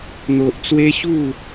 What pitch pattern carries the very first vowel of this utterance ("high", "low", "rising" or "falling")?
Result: high